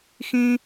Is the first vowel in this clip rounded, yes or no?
no